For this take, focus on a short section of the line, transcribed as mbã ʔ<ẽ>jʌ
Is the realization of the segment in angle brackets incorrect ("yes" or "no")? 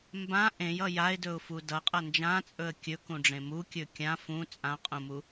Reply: no